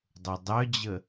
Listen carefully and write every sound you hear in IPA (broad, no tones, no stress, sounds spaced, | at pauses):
dˤ o dˤ œ d͡ʑ ə